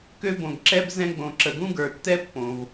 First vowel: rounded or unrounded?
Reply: rounded